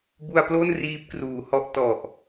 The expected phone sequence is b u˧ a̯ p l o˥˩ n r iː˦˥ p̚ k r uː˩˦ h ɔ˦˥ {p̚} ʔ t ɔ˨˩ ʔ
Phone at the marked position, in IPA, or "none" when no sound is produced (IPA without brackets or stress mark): none